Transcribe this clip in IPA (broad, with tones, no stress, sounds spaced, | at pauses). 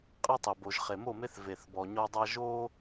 qʼ e˦ tˤ e˨ b o˨ ʒ χ e˨ m o˦˨ m e˦ θ v e˨ θ b ɔ˨ ɲ ɔ˦ dˤ a˦ ʒ o˦